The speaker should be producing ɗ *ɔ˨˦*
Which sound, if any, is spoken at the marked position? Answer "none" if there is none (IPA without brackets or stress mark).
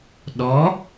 ɔ˨˦